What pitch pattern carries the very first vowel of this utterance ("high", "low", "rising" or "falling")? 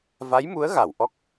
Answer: rising